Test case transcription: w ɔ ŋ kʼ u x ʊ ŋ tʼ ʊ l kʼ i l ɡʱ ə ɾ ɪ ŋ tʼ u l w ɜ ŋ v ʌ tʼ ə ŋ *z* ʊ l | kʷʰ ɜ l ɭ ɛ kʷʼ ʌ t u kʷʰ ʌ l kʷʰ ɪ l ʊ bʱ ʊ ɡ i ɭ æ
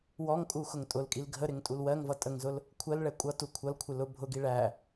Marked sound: correct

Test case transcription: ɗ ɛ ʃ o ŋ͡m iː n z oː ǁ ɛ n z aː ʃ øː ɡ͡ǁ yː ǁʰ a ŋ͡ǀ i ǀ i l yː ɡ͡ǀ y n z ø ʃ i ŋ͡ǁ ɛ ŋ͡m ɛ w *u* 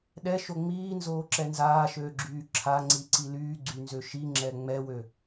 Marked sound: incorrect: ø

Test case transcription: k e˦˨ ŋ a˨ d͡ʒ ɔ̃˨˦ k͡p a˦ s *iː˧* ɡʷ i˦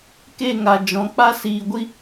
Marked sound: correct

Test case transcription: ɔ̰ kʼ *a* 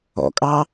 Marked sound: incorrect: ɑ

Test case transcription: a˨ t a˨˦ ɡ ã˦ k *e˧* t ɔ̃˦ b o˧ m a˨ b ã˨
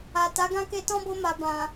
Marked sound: correct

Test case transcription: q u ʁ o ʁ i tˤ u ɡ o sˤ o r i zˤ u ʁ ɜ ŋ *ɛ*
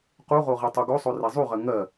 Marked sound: incorrect: ɜ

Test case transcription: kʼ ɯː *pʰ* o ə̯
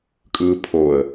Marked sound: correct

